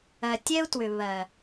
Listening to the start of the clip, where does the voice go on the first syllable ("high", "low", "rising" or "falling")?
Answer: low